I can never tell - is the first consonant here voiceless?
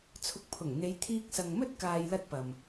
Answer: yes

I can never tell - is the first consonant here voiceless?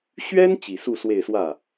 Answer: yes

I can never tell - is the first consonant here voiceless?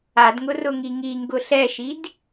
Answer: no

